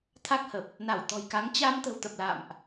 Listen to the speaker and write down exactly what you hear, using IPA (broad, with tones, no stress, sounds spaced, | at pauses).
t̪ʰ a˦˥ k̚ h ə˨˩ p̚ | n a˧˩ w t̪ ɔ̤˨˩ j k a˨˦ ŋ t͡ɕ a˧ m t̪ ə̤˨˩ w t̪ ə˨˩ p̚ l a̰˧˨ m ʔ